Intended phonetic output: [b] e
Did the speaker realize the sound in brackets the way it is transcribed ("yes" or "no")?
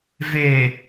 no